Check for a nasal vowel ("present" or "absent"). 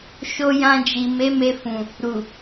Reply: present